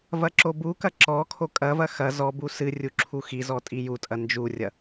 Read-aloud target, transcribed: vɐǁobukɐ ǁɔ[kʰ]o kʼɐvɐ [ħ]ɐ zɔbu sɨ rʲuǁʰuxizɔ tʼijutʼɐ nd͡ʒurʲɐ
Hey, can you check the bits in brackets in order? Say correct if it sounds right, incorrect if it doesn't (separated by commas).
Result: correct, incorrect